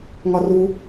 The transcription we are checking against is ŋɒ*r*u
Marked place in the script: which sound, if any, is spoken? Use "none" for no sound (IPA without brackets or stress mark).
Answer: r